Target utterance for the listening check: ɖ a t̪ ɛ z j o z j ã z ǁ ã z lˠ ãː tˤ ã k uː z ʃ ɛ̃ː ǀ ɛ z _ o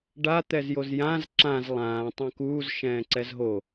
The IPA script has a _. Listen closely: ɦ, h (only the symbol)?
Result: ɦ